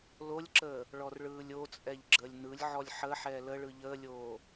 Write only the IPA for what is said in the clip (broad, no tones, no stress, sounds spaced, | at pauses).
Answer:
l o lʲ ǁ əː | ɭ ɔ r ɭ ɯː lʲ o t͡sʼ ɛ ʎ ɡ͡ǁ əː lʲ n ɯ lʲ ʕ ɔ lʲ ħ ə ħ ɛː l ə ɭ ɯ ʎ əː lʲ oː